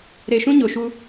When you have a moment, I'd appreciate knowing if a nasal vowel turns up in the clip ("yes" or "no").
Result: yes